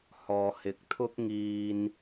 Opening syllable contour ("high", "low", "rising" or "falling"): low